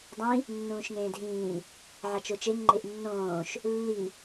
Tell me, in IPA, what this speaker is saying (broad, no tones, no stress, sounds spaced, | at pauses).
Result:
dˤ ĩ | nː ũː ʃ ŋ ẽː dʱ ĩː | ʕ a t͡ʃ o t͡ʃ e ŋ ŋ͡ǃ e ʔ nː õː ʃ | lː i